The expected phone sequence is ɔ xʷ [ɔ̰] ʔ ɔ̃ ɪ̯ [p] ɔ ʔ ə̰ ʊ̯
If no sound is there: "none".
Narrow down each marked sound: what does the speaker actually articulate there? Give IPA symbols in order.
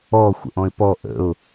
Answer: ə̰, p

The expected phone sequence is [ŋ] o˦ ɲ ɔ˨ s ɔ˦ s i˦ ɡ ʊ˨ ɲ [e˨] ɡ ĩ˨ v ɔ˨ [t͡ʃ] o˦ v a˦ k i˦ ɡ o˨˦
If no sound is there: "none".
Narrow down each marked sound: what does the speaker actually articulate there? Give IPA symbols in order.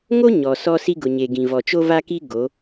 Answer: ŋ, e˨, t͡ʃ

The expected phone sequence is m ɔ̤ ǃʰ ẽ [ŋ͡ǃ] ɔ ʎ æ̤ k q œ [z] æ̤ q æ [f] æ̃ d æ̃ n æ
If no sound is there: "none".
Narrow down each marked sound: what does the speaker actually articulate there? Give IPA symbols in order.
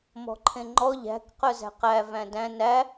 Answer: ŋ͡ǃ, z, v

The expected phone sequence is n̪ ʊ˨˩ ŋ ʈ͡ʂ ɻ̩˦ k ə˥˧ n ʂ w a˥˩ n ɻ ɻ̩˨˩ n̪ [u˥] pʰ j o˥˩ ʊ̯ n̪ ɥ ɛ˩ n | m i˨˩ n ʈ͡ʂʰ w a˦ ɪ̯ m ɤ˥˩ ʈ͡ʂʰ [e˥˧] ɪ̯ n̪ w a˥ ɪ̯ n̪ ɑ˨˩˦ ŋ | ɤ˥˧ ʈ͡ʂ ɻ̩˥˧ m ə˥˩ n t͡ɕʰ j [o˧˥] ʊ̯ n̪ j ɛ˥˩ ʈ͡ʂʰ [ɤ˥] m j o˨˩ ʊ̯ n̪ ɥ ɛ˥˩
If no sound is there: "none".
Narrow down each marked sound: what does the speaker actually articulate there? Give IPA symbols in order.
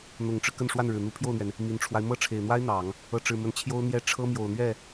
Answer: u˧˥, e˨˩, o˥, ɤ˥

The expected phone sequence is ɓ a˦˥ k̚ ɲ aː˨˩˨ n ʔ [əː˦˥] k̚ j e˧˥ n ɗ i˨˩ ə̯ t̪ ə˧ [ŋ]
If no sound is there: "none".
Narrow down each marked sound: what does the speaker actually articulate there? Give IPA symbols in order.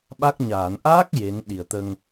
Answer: aː˦˥, ŋ

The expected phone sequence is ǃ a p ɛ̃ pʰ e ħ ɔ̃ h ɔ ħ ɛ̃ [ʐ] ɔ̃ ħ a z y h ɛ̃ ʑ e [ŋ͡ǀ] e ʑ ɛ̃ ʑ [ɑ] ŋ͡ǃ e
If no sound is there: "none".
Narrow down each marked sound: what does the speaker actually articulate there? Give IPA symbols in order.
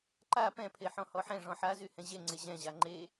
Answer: ʐ, ŋ͡ǀ, a

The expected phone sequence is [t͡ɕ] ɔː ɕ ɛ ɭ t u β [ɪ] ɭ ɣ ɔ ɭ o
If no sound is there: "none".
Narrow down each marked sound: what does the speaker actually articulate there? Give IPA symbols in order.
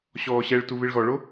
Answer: ɕ, ɪ

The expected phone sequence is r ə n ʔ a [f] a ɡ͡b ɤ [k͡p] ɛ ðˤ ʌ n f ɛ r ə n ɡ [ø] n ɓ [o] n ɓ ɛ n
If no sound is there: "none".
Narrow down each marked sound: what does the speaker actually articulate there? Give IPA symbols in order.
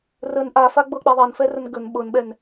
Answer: f, k͡p, ə, ɤ

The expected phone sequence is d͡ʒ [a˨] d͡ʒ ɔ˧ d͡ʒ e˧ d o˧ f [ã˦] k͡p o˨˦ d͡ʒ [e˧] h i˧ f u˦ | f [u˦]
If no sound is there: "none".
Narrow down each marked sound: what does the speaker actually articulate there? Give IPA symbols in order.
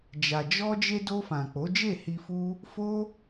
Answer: a˨, ã˨, e˦˨, o˦

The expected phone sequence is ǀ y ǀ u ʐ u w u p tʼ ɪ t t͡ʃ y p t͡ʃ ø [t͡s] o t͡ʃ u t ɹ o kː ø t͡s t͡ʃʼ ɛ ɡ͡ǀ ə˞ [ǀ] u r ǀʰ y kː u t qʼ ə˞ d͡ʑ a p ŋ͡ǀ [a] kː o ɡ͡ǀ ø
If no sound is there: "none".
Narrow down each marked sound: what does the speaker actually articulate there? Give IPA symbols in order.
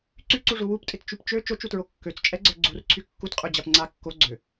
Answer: t͡ʃ, ɡ͡ǀ, a

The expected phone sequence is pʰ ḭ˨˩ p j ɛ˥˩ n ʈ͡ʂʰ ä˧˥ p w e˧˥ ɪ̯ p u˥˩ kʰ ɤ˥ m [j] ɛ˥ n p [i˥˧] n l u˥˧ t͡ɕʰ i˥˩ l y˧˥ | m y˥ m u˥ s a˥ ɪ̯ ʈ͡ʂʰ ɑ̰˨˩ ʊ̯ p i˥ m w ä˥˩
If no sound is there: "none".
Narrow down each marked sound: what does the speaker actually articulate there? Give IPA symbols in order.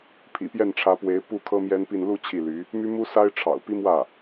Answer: j, i˥˧

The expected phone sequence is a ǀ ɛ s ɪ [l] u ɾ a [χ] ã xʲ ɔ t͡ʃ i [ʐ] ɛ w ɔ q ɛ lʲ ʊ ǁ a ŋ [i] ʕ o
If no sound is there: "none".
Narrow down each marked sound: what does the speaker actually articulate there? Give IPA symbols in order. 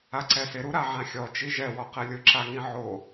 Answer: ɾ, ʕ, ʒ, ĩ

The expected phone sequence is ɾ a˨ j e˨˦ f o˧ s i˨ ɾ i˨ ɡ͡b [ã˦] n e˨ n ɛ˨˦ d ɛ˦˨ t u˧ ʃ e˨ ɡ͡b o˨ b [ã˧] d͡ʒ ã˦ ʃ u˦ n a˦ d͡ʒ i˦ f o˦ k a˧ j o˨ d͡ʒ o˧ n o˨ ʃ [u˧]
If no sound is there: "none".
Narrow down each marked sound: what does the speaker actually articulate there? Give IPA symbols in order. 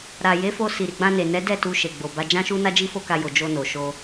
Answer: ã˧, a˧, o˧

